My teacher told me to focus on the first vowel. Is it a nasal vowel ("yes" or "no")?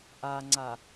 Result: no